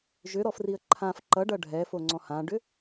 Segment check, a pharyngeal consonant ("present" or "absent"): absent